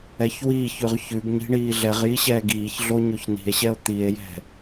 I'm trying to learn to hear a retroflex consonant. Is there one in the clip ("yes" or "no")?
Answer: yes